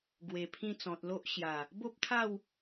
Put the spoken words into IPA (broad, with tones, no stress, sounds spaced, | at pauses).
ɡ w e˨˩ pʰ ĩ˧ t͡s ɔ̃˨ t̚ l o˦ ʔ ɕ j a˨˩ | b o˦ p̚ t̪ʰ a˥˧ w